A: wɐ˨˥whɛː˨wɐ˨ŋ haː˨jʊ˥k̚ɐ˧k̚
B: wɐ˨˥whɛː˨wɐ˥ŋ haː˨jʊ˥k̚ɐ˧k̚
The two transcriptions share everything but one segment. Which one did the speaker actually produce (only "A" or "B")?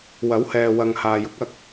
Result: A